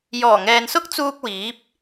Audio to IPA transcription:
j ɔː˨˩ ŋ ɛː˨ n s ʊ˥ k̚ t͡s uː˧ k̚ w iː˨˥ p̚

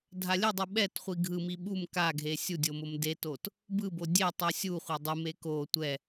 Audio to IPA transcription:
dʱ a lʲ ɯ dˤ u ɓ ɛ t χʷ i ɡʱ ɯ m i ɓ u m k a ɡʱ e sʲ u dʲ o m o m d e t o t | b ɯ b o dʲ e tˤ u sʲ u χʷ a dˤ ɯ m e k o tʷ ɛ

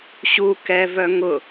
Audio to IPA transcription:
ɕ u k ɛ v œ ŋ ʊ

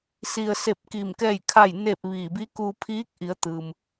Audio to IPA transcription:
s i˩ ə̯ s e˧˩ p̚ k iː˧˩ m k ɛː˥˨ j kʰ a˥˨ j n e˥˨ p̚ ʋ iː˧˩ b i˧˥ k uː˧ pʰ iː˧˥ k̚ ʔ i˩˧ ə̯ t̪ ɯː˩ m

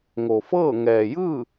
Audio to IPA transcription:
ŋ o˩ f ɤː˥˨ ŋ ɛː˩ j ɯː˥˨

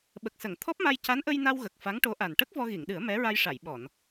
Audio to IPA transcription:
ɓ ə˨˩ k̚ s ə˨˩˨ ŋ t̪ʰ ɔ˦˥ p̚ m a˧ j c a˧˥ n ʔ ə˧ j n a˧ w ɣ ə˨˩ k̚ f a˧˥ ŋ ʈ o˧˥ ʔ a˨˩ n ʈ ə˦˥ k̚ v ɔ˧ ɣ i˨˩˨ ŋ ɗ ɨ˨˩˦ ə̯ m ɛ˧˥ ɹ a˧ j ʂ a˨˩˨ j ɓ ɔ˨˩˨ n

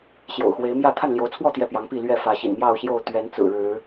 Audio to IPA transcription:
ɕ j o̰˨˩ ʊ̯ x w e˨˦ ɪ̯ m j ä˥˨ t̪ʰ a˥˨ n l j o˨˦ ʊ̯ t͡sʰ w ɔ˥˨ t̪ j ɛ˥˨ p j ɑ˨˦ ŋ p i˥˨ l ɥ ɛ˥˨ f ä˨˦ ɕ ḭ˨˩ n m j ɑ˥˨ ʊ̯ ɕ j o˥˨ ʊ̯ t̪ ɥ ɛ˨˦ n t͡s ɹ̩˨˩ ɻ ɻ̩˨˦

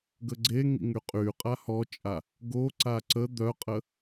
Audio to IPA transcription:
ɡ ə ɡ͡ǀ e ŋ ḭ ŋ y qʼ y qʼ a h ɔ t͡ʃʼ a | ɡ o ǀ a ǀ ə d̪ œ qʼ ə

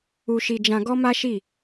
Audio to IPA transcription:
u˧ ʃ i˧ d͡ʒ ã˧ ɡ ɔ˦ m a˦ ʃ i˦˨

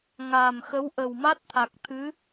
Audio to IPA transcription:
ŋ aː˨˩ m x ə˧˥ w ʔ ə˨˩ w m a˦˥ t̚ t̪ʰ a˨˩ k̚ t̪ʰ ɨ˧˥

